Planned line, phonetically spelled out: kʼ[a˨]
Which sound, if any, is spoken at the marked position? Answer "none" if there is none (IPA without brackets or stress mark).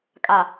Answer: a˨